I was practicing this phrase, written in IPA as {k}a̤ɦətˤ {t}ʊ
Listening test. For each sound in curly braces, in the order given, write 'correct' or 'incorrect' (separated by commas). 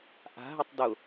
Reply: incorrect, incorrect